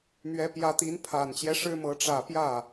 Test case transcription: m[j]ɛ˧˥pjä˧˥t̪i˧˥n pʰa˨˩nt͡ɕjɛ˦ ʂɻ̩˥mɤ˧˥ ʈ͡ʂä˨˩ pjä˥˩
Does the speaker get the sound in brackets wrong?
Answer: yes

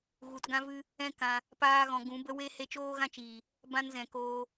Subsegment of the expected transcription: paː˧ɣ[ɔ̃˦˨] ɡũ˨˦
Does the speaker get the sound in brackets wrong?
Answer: yes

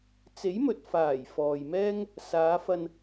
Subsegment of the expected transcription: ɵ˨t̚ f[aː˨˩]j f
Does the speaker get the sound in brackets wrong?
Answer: no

